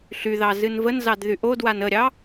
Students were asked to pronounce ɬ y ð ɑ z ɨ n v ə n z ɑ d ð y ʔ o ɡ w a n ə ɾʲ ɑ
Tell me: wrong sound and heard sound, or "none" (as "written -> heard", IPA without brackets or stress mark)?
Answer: ɡ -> d